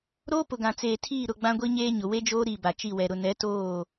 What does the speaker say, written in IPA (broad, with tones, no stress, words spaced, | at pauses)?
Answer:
ɾoː˦pʊ˨ɡã˨ t͡seː˨tʰiː˦˨ ɾʊ˦˨ɡ͡bã˦ɡʷi˦ɲeː˦ ɲʊ˨we˦d͡ʒoː˦ ɾi˦˨ ba˨t͡ʃi˦˨wɛ˨ ɾʊ˨nɛ˨˦toː˦˨